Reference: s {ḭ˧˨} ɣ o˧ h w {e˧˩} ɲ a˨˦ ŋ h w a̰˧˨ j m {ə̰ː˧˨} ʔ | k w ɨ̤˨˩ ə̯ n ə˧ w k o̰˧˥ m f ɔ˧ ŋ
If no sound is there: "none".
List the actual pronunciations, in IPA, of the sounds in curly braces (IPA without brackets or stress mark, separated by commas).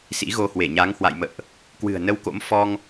ḭ˧˥, e˧˩, ə̰ː˧˨